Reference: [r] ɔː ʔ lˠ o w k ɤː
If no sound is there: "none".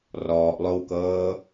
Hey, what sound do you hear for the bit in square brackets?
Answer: r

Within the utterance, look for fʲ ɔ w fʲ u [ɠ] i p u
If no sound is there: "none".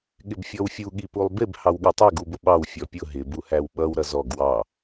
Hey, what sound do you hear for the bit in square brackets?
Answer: ɠ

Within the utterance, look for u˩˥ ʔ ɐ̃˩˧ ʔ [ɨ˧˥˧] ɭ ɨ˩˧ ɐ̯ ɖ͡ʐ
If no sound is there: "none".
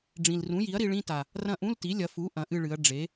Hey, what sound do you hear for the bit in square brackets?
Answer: ɨ˦˨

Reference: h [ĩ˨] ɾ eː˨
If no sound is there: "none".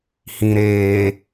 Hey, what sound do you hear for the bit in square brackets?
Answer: ĩ˨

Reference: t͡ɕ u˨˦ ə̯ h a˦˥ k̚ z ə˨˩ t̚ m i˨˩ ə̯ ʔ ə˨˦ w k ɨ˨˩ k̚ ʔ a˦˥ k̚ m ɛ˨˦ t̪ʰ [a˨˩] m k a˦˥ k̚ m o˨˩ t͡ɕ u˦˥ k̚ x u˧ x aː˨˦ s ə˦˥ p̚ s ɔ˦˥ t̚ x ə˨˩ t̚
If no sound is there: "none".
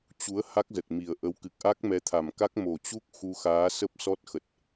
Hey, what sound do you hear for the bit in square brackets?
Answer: a˨˩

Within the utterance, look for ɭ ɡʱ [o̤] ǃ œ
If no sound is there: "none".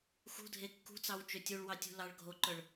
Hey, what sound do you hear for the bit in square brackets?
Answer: o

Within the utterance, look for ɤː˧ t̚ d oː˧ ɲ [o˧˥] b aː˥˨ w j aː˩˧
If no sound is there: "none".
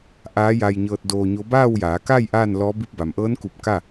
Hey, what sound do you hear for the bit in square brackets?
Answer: o˧˥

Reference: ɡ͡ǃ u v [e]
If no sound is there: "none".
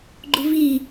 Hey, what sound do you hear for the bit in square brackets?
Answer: i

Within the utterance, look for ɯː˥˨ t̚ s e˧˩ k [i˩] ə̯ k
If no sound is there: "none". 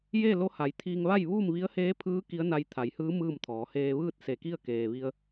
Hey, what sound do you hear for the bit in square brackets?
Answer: i˥˨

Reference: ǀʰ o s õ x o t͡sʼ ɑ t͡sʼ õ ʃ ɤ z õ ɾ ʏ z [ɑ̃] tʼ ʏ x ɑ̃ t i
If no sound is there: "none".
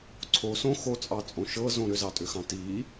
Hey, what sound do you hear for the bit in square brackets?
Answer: ɑ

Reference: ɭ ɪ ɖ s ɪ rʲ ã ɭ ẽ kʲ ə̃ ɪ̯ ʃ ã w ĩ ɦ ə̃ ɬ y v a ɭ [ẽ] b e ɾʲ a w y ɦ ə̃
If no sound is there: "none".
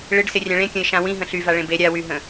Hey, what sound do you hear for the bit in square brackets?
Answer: ẽ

